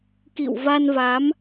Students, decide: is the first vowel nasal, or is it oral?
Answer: oral